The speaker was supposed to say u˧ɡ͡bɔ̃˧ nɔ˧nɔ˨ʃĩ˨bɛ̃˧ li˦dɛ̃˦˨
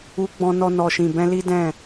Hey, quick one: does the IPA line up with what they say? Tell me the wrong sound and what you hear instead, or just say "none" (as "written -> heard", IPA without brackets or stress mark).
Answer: none